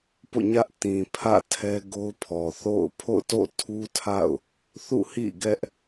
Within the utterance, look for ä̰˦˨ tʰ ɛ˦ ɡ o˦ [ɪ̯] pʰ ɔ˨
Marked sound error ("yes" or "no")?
yes